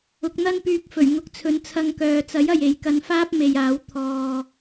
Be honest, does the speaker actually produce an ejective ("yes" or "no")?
no